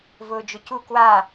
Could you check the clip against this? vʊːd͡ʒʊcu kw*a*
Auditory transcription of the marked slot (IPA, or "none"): a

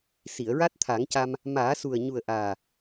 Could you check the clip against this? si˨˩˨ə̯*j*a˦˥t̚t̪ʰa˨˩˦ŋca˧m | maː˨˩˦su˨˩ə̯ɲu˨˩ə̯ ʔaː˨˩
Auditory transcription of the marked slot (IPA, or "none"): ɹ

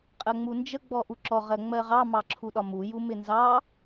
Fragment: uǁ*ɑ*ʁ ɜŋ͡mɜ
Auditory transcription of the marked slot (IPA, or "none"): ɔ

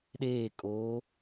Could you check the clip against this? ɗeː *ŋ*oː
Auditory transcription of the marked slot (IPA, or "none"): kʼ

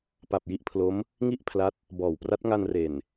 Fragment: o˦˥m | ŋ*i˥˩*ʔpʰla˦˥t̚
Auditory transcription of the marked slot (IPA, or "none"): i˥˩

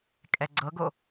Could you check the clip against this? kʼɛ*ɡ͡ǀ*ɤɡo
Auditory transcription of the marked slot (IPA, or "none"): ɡ͡ǀ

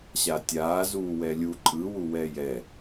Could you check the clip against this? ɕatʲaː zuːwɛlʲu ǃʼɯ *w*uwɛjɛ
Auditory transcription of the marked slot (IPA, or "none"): w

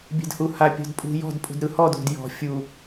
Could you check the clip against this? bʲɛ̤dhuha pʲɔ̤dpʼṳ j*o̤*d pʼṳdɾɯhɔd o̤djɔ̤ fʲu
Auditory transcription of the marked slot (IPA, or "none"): ɔ̤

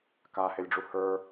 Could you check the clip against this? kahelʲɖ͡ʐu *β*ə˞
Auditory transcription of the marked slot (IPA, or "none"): h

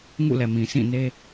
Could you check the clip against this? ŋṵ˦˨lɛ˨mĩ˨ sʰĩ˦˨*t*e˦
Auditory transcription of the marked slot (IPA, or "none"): n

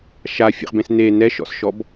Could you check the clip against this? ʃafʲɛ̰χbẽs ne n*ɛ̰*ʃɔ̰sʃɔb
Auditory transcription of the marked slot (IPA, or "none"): ɛ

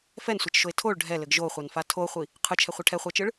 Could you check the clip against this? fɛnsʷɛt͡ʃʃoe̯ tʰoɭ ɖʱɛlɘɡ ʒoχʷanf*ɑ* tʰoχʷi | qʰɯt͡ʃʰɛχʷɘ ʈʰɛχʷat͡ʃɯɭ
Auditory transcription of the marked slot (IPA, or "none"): a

